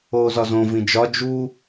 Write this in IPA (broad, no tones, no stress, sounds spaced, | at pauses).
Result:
oː z ɒ z õ v ĩ d͡ʒ ɒ d͡ʒ u